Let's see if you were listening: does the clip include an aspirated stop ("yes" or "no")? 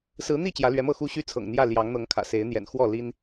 yes